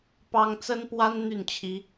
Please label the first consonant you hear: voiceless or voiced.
voiceless